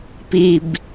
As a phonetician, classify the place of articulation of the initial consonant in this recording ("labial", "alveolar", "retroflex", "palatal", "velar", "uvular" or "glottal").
labial